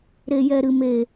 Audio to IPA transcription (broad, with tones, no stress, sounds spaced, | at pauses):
ɾ e˨ j ɛ˨ ɾ ɨ˨ m e˨